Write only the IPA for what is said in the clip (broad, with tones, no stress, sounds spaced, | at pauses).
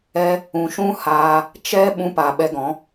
ɛ˦ | ũ˨ ʃ ũ˦ h aː˧ | t͡ʃ ɛ˦ ɓ ũ˧ p a˨ ɓ ɛ˧ ɡ ɔ̃˨˦